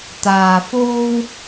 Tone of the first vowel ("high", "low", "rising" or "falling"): low